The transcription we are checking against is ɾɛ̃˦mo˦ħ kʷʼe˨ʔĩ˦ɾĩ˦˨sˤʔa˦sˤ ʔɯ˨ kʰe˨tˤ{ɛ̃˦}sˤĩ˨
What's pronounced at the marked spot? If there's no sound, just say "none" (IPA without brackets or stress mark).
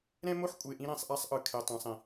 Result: ɛ̃˨